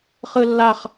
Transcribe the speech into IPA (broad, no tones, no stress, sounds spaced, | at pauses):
χ ɯ lː a χ